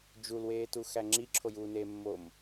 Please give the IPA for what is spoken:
d͡ʒ u l w eː t u x æ ŋ͡ǁ i ǁʰ o j uː n eː mː o m

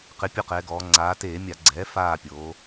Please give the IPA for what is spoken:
q ɪ˩˧ pʲ o˦˨ q ɛː˩˧ ɡ ɔː˩˧ ŋ͡ǀ aː˩˧ t eː˧˩˧ mʲ a˧˩˧ ɡ͡ǀ ɛː˩˥ f aː˦˨ pʲ oː˩˧

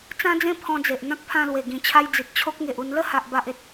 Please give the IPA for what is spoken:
t͡s ã˦ d͡z ẽ˦ pʰ ɔ̃˧ d͡z e˨ ʔ n̪ ã˦ k̚ pʰ ã˧ l w e˨˩ ɡ ĩ˨˩ t͡ɕʰ a˧ j d͡z i˨ t̚ t͡ɕʰ o˦ k̚ ŋ e˨ ʔ u˧ n l ə˥˧ h a˨ ʔ b a˨ ʔ e˨ t̚

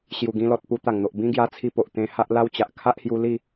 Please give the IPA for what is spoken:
ɕ j u˨˩ ɡ ĩ˧ l ɔ˨ t̚ p u˧ t̪ a˨˩ ŋ n̪ o˨ ʔ b ĩ˦ ɡ j a˧ t͡sʰ i˧ p o˨ ʔ t̪ ẽ˧ h a˦ ʔ l a˦ w t͡ɕ a˨ ʔ kʰ a˦ ʔ h j u˧ l i˥˧

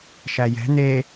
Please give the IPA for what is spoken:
ʃ æ j ɛ̤ n̪ e

